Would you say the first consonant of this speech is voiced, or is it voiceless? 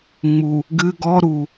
voiced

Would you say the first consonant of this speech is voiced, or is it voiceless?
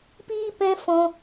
voiceless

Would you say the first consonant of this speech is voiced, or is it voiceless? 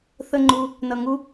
voiceless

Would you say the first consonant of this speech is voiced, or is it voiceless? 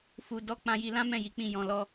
voiceless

